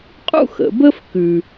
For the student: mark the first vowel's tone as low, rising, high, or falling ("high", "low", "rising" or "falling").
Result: falling